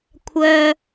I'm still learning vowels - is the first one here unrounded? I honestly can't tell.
no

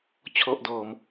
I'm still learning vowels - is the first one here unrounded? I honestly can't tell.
no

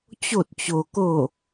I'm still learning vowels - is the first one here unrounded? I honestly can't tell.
no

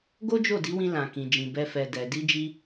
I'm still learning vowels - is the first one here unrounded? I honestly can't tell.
no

